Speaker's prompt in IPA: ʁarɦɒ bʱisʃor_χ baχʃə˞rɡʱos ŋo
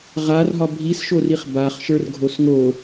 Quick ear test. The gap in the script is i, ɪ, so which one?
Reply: i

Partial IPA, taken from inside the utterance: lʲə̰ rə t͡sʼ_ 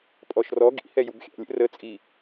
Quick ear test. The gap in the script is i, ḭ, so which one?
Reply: i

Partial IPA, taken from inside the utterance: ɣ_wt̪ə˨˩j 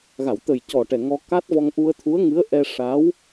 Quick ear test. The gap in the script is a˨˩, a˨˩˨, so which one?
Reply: a˨˩˨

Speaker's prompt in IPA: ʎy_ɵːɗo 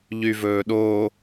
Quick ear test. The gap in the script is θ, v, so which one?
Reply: v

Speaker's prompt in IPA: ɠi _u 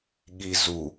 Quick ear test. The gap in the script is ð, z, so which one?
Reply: z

